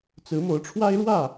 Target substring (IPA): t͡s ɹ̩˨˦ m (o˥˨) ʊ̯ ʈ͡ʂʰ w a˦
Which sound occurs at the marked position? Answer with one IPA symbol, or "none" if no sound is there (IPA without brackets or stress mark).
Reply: o˨˦